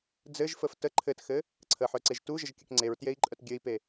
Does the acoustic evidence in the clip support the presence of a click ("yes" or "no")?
yes